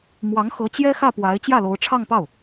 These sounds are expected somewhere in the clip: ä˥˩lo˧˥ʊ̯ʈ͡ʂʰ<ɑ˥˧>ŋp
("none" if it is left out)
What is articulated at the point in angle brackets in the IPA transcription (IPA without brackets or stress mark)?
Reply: ɑ˥˧